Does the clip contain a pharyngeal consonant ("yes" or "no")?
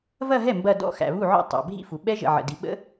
yes